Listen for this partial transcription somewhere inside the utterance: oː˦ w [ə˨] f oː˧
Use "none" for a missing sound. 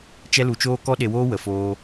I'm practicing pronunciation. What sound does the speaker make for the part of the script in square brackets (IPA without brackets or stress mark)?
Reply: ə˨